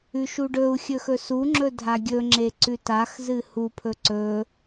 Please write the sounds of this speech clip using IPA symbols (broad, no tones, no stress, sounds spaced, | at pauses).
ʉ ʃ u ɖ ɵ u̯ xʲ ɵ x ɵ s u ŋ͡ǁ ɵ dʱ a ɡʲ ɵ ŋ͡ǁ e ǀ ʉ t a x z ɨ h u pʰ ɵ ǀ ɵ